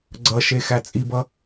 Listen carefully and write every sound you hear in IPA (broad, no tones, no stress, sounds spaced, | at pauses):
ɡ͡ǀ ʌ ʃ e x æ t͡sʼ i b ʌ